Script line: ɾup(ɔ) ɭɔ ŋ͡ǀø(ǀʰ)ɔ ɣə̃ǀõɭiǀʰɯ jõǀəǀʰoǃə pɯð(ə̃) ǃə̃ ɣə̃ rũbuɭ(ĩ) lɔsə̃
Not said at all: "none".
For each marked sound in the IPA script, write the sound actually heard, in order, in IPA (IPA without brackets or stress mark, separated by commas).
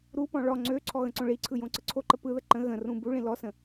ɔ̃, ǀʰ, ə, ĩ